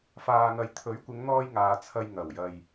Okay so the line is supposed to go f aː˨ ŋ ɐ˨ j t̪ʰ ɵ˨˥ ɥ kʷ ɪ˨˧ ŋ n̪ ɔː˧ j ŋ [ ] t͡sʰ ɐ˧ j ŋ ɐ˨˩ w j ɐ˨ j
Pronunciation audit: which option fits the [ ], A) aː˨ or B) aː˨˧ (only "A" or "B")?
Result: A